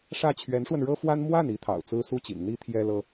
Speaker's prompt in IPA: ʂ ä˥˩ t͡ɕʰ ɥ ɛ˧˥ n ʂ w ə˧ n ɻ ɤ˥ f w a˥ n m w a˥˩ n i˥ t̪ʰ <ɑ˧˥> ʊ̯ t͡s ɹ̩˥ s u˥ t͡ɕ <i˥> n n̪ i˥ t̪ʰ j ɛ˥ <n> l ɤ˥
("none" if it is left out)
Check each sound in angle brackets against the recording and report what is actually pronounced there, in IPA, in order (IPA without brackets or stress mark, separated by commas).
ɑ̰˨˩, ḭ˨˩, none